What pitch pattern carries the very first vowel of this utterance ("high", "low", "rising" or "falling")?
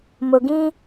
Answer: low